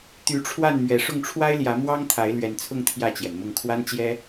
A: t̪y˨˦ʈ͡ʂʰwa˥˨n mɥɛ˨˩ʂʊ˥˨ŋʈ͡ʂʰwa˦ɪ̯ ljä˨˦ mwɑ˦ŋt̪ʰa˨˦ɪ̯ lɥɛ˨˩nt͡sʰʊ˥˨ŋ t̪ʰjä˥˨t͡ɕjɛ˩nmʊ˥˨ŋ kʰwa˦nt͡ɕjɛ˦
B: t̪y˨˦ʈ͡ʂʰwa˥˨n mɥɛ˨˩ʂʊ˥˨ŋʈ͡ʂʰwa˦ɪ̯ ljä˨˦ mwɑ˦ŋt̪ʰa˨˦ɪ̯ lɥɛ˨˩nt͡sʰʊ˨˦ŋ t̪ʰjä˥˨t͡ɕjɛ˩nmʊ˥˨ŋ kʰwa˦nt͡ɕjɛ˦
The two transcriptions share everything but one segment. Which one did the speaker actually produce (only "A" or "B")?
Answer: A